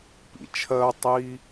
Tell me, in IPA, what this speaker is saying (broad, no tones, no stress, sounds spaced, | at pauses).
p ḭ t͡ʃʰ ɜ tˤ i